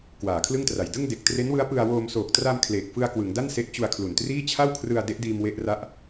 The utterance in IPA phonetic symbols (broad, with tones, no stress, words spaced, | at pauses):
kwaː˩˦kʰlɯ˥˩ŋtra˨˩j dɯ˥˩ŋde˨˩k̚ tre˦˥nwɯ˦˥a̯ pɯ˧a̯woː˧m soː˨˩k̚tra˧m kʰleː˨˩k̚fɯ˧a̯kwɯ˩˦ŋda˥˩n se˦˥ʔt͡ɕu˧a̯kʰlu˨˩ntriː˥˩ t͡ɕʰa˥˩wkʰrɯ˧a̯ de˦˥ʔdiː˧m we˥˩ʔra˥˩ʔ